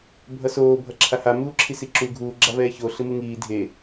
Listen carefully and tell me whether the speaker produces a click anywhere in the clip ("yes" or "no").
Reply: yes